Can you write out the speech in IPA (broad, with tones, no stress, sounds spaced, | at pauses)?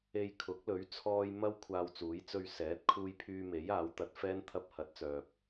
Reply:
e˧ j kʰ ʊ˨˥ k̚ l ɵ˨˥ ɥ t͡sʰ ɔː˧ j m ɐ˥ w kʷʰ aː˧ w t͡s uː˨˥ j t͡s ɵ˧ ɥ s ɛː˨˥ t̚ kʰ uː˧ j pʰ yː˧ m e˨˥ j aː˨˥ w t̪ ɐ˨˥ t̚ f ɛː˥ n t̪ʰ ɐ˧ p̚ h ɐ˨˥ t̚ t͡s œː˨ p̚